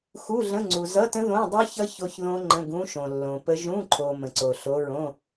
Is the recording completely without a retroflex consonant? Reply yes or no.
yes